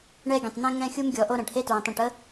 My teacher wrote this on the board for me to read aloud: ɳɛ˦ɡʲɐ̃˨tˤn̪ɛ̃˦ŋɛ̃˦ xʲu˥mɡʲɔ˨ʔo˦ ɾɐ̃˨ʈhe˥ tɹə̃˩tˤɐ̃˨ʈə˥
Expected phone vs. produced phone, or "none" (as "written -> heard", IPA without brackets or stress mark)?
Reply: none